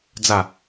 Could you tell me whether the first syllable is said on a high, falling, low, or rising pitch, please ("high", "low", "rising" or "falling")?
falling